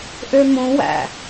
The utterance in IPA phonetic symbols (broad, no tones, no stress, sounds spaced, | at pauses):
ʔ ø m õ w æ̰